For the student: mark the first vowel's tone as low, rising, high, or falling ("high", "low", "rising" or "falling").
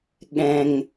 high